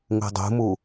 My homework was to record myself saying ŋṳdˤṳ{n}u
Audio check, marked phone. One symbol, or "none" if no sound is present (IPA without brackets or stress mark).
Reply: m